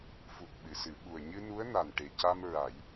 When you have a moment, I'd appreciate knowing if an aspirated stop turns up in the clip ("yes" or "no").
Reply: no